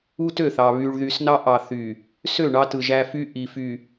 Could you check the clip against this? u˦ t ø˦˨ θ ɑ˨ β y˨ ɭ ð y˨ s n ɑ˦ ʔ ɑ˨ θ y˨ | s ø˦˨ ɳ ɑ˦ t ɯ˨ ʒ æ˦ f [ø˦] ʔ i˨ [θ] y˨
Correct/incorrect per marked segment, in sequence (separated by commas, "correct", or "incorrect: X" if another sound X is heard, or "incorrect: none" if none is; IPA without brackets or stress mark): incorrect: y˦, incorrect: f